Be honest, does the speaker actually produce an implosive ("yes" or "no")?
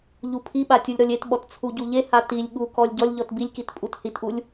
yes